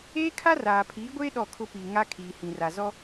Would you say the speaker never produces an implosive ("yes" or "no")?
no